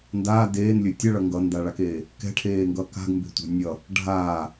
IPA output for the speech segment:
ndaː deːnlʲɵ tʲʌɭʌ ŋɡʌndaɭakeː | kɛ̤ʈʰeːŋɡʌ ka̤ɡmbe̤tʷa̤ nʲʌ | ɖʱaː

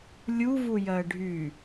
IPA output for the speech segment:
lʲuvujɜ ɖʱy

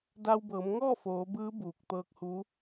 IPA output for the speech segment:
da˧wbɤː˩˧mŋɔː˥˨foː˩˧ bɯː˧˥ buː˧˩k̚t̪ɤː˧˥k̚huː˧˥

